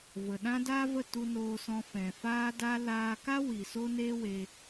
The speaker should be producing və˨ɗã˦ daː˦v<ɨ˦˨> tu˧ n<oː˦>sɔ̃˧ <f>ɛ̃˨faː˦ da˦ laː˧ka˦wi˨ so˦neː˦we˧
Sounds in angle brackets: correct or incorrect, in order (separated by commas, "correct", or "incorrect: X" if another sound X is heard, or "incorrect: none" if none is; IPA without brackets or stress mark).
incorrect: ə˦˨, incorrect: oː˧, correct